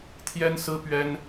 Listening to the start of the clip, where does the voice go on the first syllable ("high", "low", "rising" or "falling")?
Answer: high